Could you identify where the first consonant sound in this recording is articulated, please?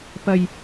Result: labial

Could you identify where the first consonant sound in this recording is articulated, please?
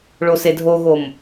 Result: retroflex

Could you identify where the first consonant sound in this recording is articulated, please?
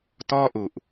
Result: alveolar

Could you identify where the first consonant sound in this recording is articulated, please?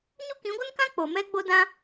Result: palatal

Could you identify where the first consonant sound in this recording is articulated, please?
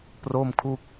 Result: labial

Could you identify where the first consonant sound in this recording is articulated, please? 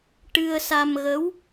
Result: retroflex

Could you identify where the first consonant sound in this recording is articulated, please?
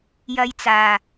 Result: palatal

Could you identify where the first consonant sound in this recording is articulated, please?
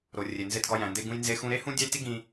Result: alveolar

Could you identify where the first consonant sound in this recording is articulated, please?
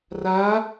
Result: alveolar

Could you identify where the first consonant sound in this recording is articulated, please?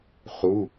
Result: uvular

